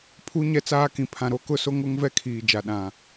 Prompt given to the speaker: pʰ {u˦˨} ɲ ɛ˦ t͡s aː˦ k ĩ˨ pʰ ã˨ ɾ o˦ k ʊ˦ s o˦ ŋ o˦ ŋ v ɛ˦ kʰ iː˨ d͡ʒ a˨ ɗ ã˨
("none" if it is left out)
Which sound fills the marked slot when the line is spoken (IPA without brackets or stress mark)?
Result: u˦